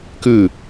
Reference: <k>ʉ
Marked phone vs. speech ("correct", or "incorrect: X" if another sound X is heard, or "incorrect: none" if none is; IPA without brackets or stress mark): correct